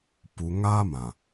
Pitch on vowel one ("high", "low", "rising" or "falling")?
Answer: low